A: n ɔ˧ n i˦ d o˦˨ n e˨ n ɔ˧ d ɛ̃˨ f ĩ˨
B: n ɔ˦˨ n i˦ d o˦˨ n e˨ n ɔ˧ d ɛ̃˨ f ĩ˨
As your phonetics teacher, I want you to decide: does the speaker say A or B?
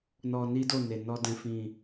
A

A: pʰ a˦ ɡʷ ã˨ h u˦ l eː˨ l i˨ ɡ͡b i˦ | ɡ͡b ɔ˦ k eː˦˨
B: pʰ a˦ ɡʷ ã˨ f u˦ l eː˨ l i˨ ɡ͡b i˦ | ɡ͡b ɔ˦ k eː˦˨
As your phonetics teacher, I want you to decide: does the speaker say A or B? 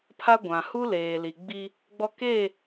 A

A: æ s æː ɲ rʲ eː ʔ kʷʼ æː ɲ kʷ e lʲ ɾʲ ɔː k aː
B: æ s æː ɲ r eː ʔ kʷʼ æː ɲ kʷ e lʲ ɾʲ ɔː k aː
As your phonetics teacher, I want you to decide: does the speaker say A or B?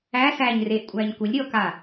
B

